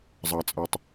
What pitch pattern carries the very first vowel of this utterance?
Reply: low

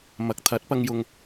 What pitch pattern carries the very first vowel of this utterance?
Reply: rising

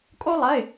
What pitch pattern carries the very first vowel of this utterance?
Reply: high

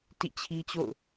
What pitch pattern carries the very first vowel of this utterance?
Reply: falling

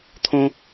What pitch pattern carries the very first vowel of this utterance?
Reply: high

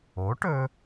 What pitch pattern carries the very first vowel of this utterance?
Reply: rising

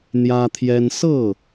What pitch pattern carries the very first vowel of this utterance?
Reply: high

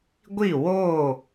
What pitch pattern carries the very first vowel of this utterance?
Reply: falling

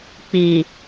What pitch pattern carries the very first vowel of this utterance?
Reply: low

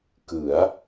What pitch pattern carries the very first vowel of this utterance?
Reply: rising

